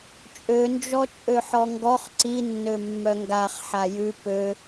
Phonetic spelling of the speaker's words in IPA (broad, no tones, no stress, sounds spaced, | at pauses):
t͡ʃʼ ø n d͡ʒ ɔ t͡ʃʼ ø ħ ɔ ŋ ɡ ɔ χ ǀ i nː ø mː œ ŋ ɡ a χ ħ a j ʉ p ø